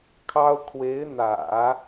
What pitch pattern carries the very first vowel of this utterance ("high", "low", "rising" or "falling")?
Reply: high